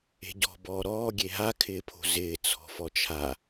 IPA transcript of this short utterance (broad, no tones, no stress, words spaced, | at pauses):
e̤ɟɔ̤ bɔːɾɔː ɡʲeɦa kʰɪːpʰo̤zɪː t͡sʰɔ̤fɔt͡ʃʰa